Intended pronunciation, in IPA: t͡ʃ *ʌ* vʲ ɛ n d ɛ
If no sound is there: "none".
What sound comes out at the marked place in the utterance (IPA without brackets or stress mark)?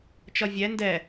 ʌ